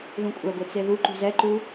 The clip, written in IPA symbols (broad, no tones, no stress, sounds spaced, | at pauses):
ð ũ kʷʼ ɛ ɡʷ e t͡s e ð u ǃ ṳ z ɛ ǃ u